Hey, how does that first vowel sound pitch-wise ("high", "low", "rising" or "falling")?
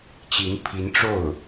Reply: rising